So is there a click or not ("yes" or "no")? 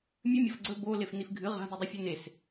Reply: yes